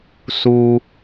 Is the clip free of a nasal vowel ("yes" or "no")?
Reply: yes